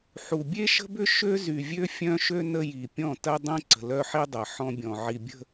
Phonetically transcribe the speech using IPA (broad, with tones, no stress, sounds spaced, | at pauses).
ħ u˨ bʲ e˦ ʃ ə̤˦ b ʏ˦ ʃ ø˦ z y˨ vʲ ø˦ fʲ œ̃˦ ʃ ø˦ n ə˦ j i˨ pʲ ɔ̃˦˨ t ɐ˦ dˤ ĩ˦ ǀ ə̤˨ l œ˦ ħ i˦ dˤ ɐ˨ ħ ɔ̃˦ bʲ ɔ̃˨ ʕ i˨ bʲ ə̤˦˨